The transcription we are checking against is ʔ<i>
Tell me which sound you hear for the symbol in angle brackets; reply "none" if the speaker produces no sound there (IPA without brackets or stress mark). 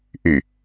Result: y